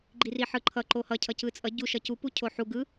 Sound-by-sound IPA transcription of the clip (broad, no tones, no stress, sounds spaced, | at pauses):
ɡ͡ǃ i r i ħ ɯ ǃʰ ʌ ǃ o h ʌ cʰ ʌ c ɯ t͡sʼ ʌ ɟ u ʃ ʌ c u p u cʰ o ħ u ɡ ɯ